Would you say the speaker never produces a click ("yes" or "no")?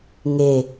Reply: yes